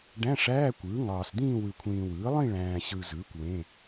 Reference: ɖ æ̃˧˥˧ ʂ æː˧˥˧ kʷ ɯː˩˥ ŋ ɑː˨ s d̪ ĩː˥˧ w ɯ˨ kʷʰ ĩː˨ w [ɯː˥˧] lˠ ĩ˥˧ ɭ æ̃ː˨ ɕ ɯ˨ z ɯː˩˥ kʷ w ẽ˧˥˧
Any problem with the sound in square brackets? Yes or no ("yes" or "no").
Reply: yes